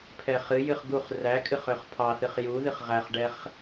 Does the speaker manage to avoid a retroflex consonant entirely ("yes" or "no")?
no